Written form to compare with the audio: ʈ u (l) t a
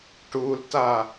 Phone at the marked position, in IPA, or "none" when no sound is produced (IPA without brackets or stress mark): l